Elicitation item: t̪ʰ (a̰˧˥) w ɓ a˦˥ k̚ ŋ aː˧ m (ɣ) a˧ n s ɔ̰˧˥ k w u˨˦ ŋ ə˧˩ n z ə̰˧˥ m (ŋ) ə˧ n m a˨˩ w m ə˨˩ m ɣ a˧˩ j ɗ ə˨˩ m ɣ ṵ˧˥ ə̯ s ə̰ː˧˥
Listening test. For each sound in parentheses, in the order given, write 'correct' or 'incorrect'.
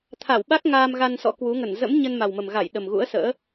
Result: incorrect, correct, incorrect

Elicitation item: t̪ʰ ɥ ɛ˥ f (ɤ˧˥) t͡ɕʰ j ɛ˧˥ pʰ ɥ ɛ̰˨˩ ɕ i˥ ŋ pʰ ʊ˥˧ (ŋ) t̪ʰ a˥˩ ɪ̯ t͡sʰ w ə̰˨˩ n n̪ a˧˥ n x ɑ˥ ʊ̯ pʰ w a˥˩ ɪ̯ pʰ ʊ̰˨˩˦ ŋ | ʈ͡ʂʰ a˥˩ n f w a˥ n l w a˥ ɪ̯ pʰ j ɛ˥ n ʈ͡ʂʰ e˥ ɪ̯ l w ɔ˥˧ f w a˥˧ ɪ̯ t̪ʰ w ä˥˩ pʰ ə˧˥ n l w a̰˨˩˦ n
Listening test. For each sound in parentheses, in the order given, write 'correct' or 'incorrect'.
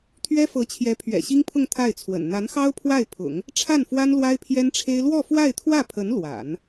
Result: correct, correct

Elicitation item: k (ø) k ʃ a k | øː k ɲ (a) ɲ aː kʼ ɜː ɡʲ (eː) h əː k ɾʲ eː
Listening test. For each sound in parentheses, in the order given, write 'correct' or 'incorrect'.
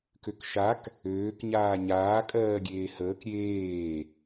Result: correct, incorrect, correct

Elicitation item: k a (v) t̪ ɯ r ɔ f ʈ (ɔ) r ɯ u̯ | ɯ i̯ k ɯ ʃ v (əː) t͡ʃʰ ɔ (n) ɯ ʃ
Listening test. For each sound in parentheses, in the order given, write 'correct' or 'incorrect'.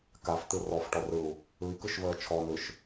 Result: incorrect, correct, correct, correct

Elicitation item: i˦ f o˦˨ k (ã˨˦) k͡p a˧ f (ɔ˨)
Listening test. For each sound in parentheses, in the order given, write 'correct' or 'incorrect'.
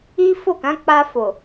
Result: correct, incorrect

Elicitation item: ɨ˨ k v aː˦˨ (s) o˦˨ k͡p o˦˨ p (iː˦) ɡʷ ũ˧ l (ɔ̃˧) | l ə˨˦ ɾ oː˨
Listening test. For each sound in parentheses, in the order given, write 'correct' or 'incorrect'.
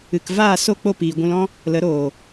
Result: correct, incorrect, incorrect

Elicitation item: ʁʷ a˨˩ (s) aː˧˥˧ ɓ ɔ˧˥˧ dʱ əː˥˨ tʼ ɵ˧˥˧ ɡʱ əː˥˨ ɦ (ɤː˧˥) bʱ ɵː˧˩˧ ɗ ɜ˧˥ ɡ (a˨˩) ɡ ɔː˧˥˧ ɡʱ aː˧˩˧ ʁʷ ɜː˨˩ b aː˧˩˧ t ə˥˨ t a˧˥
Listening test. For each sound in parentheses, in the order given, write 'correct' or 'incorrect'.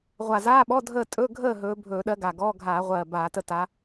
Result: incorrect, incorrect, correct

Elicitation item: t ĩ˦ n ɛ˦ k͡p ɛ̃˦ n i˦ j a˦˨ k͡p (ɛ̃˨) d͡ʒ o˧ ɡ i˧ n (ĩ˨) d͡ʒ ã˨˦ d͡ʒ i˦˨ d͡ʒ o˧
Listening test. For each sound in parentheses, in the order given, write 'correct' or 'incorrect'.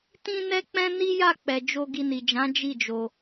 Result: incorrect, incorrect

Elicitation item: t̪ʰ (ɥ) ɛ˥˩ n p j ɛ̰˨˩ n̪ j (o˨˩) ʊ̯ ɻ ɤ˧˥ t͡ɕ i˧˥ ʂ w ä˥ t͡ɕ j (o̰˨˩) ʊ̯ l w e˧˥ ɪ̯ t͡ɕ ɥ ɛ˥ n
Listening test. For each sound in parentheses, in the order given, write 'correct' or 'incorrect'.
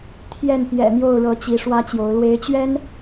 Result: incorrect, incorrect, incorrect

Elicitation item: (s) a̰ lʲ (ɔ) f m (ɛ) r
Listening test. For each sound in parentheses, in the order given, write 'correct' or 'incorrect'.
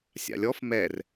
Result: incorrect, correct, correct

